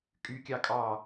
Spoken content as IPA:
kʼ y kʲ ɑ kʼ ɑ

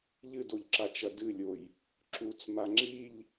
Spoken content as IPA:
ʎ ɨ d o ʎ ǁ a t͡ʃ ɐ d ɨ lʲ o j | ǁ u t͡s m a ŋ͡ǁ i ʎ

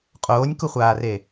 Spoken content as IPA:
qʼ oː nʲ k u χʷ aː r e

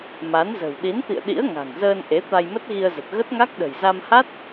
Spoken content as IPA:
m a˨˦ n z ə̤˨˩ w ɗ i˨˦ n t̪ ḭ˧˨ ə̯ ɗ ḭ˧˥ ə̯ ŋ a̤˨˩ ŋ z əː˧ n ʔ e˨˦ t̪ a˧ j m ə˦˥ t̚ ɣ i˧ ə̯ z ə˨˩ t̚ ɣ ə˦˥ t̚ ŋ a˦˥ k̚ ɗ ə̤˨˩ j z a˧ m h a˦˥ t̚

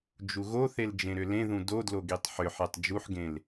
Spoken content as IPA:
d͡ʒ u ɣ o θ e l d͡ʒ ẽ ɾ ʏ l ẽ ð ũ d o d l o ɡ i tˤ ħ ʏ ħ e tˤ d͡ʒ u ħ ɡ ẽ l

